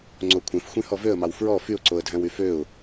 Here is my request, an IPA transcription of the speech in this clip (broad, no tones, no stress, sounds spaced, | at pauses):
ŋ͡ǀ o kʷʰ ẽ f xʷ ĩ h ɔ v ø ə̯ m ɑ w f ɹ ɔ f y ʊ̯ ǀ o ə̯ dʱ æ̃ w y f ø ʊ̯